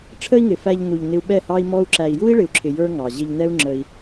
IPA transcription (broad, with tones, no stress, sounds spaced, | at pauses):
ʈ͡ʂʰ ə˦ i̯ ŋ ɪ˨ f æ˧ ʎ n u˨ ʎ n ɪ˧ u̯ ɓ ɛ˦˨ h ɑ˦ i̯ m ɔ˦ u̯ ǁ æ˨ i̯ j u˦ i̯ ɭ ɪ˨ u̯ ǁʰ ɪ˨ j ə˞˦ ŋ ɑ˨ ʑ ɪ˧ ʎ n̪ ɛ˦ u̯ ŋ͡ǁ ə˧ i̯